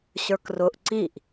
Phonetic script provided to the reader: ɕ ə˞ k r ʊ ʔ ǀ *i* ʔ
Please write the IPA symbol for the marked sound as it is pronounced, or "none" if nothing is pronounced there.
i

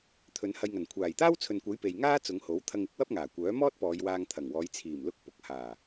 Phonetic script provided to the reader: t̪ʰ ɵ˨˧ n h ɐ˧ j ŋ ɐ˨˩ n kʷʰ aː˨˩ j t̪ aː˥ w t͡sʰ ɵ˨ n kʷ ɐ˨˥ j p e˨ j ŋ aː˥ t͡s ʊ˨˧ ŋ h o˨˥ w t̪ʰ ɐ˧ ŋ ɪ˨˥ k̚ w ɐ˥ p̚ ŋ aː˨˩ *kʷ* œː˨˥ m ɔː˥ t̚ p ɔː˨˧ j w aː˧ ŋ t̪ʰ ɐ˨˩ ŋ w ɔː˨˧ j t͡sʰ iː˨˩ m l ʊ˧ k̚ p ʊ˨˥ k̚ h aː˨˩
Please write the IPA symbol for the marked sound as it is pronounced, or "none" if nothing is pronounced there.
kʷ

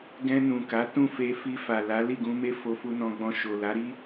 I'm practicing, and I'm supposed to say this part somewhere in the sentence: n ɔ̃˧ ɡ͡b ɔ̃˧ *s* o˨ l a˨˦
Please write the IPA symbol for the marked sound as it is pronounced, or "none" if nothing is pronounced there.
ʃ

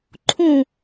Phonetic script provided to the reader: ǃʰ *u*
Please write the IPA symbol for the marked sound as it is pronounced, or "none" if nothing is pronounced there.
ũ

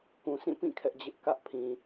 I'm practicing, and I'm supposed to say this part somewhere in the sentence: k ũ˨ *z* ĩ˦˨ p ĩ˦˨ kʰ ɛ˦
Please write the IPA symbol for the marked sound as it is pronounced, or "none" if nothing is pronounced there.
s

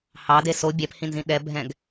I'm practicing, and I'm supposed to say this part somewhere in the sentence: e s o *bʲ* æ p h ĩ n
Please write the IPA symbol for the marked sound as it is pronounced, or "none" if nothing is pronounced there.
bʲ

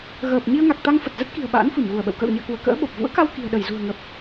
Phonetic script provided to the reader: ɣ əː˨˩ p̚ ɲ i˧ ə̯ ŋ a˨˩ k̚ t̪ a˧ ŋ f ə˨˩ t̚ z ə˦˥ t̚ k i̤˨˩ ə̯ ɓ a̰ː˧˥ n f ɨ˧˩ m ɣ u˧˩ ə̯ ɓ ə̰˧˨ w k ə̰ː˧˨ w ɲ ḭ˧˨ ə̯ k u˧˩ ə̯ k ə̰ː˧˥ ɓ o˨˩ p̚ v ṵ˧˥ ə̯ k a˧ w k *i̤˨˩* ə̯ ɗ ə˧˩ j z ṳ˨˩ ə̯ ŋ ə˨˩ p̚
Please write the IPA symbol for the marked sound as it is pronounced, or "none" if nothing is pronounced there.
i̤˨˩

